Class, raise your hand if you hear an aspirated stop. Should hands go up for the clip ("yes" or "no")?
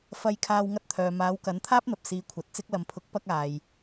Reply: yes